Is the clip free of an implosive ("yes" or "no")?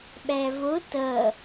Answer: no